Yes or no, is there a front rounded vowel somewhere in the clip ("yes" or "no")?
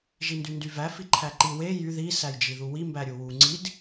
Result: yes